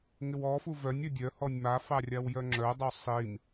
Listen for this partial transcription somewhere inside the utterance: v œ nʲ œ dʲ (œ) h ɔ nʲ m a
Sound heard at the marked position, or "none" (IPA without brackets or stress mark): œ